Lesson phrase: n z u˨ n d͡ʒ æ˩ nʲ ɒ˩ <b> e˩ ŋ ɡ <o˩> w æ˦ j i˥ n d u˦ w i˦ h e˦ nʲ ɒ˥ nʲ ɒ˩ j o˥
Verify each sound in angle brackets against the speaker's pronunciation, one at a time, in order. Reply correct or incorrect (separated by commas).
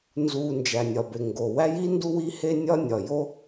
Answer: correct, correct